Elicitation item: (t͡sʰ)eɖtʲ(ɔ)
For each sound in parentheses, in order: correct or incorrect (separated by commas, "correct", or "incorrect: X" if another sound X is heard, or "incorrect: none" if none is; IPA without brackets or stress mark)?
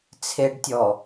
correct, correct